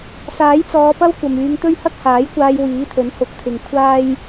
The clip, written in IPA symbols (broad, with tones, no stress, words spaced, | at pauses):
saː˨˥jt͡sɔː˨˧pɐ˥w kʷɐ˨myː˨˧ŋt̪ɵ˥ɥ hɐ˥k̚haː˨˥jkʷaː˧j wiː˨˥t̪ʰɵ˨˥n hʊ˨˥k̚t̪ʰɪ˨ŋ kʷʰaː˥j